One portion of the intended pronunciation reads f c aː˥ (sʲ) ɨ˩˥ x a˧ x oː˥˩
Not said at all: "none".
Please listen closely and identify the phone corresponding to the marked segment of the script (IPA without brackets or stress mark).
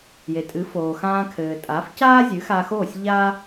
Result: zʲ